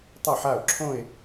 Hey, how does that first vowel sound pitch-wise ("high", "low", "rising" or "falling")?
falling